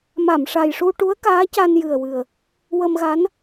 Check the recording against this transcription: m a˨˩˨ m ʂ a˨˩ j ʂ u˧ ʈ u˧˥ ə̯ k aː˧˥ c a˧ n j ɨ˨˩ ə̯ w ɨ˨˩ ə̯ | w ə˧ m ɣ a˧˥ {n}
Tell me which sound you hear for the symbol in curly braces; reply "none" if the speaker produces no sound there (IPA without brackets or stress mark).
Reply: n